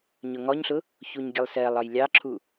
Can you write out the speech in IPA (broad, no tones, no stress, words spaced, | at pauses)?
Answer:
ɲʊŋɔɲɬʊ | çuɲɡʲəlˠsɜlˠ ɒjlʲɑǁʰu